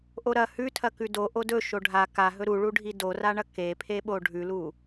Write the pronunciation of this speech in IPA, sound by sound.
ʔ o ɾ ɐ h ʉ tʰ ɐ k ʉ d o ʔ o d ɵ ʃ o ɖʱ a k a ɦ ɵ ɾ u ɭ u ɖʱ i d o r a ɳ ɐ k e pʰ e ɓ o ɖʱ ʉ l u

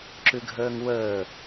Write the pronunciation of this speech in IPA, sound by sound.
ǁ ʉ ɡʱ əː ŋ w əː

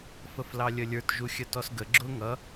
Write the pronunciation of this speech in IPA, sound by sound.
f ə f l ɑ lʲ ə lʲ ə˞ t ʒ u xʲ ə t ɔ s ɡ ə ɡ͡ǁ ʊ ŋ ʌ

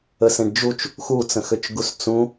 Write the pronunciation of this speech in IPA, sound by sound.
ə s ẽ ɖ d͡ʒ u t͡ʃ | x u t͡s ə̃ x ø t͡ʃ ɡ u s t͡s ũ

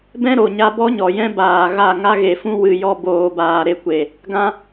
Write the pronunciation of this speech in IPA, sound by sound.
b ɛ̃˦ ɾ o˨ ɲ a˧ b ɔ˦ ɲ ɔ˨ j ɛ̃˦ b aː˨ ɣ a˦˨ ŋ a˦ ɣ e˨ f ũ˦ w ɨ˧ j ɔ˦ b oː˧ b aː˧ ɾ e˧ kʷ e˨ | ɡ ã˦

